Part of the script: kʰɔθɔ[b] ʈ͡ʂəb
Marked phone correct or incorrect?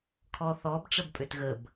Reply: correct